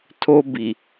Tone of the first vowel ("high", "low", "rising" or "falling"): high